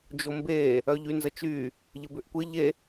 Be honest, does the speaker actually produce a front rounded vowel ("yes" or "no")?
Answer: yes